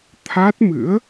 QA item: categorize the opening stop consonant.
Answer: aspirated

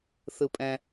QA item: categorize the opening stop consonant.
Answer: ejective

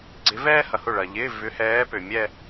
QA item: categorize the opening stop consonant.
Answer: click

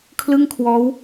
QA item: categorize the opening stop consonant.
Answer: aspirated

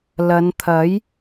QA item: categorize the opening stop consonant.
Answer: aspirated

